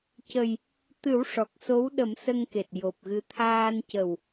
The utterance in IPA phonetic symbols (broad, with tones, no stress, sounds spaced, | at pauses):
c ə˨˩ j | t̪ ɨ˨˩˦ w ʂ ɔ˨˩ k̚ s o˧˥ w ɗ ə˨˩˦ m s ə˧ ŋ k e˨˩ t̚ j o˨˩ p̚ ɣ ɨ˧ t̪ʰ aː˧ n c ə˨˩ w